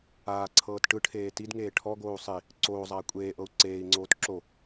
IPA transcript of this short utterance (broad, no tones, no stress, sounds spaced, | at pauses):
aː ǀʰ ɤː t ʈ ɯ ʈʰ eː t i d ŋ eː ʈʰ ɔ ɡ oː u̯ sˤ i | ǀ oː zˤ aː kʷʼ eː ʔ ɤ u̯ ǀ eː i̯ ŋ͡ǀ oː t ǁ o